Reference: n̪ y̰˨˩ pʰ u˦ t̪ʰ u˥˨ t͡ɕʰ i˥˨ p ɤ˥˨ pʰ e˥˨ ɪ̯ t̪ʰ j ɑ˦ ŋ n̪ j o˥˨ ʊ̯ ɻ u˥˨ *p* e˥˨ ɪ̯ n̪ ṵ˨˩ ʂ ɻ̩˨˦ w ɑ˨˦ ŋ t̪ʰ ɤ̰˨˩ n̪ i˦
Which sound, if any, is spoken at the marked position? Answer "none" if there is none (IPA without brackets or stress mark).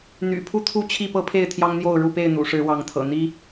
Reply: p